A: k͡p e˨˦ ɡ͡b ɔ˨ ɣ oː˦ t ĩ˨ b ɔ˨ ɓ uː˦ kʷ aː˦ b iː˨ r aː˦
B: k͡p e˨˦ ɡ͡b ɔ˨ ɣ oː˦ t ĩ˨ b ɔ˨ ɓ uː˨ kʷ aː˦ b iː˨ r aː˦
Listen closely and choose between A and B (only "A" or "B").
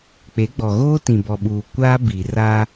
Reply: B